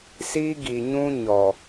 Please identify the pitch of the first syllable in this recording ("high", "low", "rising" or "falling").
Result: high